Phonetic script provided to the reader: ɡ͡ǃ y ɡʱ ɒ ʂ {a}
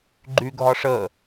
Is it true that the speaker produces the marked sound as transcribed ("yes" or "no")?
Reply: no